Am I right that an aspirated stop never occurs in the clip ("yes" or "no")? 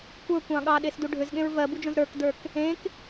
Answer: yes